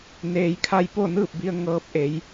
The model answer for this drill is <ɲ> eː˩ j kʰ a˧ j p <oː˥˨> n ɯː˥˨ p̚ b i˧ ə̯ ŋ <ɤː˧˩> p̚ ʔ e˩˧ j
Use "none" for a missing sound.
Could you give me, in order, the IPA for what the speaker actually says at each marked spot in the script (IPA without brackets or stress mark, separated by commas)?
n, o˥˨, ɤː˧